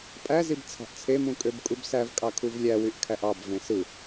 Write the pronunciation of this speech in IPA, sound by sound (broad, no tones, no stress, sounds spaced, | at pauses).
pʼ æ z i b t͡sʰ ɑ̤ ʔ t͡sʰ e m ũ kʼ ø b kʼ u b s æ v kʼ ɑ kʰ u v lʲ æ w y ʔ kʰ æ ʔ ɑ b v ẽ s ɯ